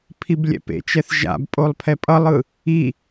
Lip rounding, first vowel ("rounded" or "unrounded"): unrounded